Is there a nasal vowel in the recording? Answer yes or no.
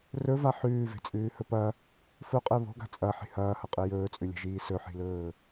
no